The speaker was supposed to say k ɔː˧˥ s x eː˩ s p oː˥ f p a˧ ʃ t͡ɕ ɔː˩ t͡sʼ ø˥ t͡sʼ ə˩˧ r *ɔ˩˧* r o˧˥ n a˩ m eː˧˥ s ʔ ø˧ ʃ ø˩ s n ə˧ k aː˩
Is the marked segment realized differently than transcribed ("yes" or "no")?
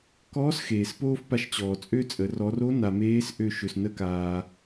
no